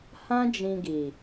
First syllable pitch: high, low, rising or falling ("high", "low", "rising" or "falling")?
high